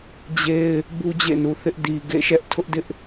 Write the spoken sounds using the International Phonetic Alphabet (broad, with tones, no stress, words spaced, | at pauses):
d͡ʑe˦ɪ̯ | bu˦d͡ʑḛ˦˨nu˨θɪ˦ʔ di˨ ɡḛ˦˨ʃɛ˦ʔtʰʊ˦ʔdɪ˦ʔ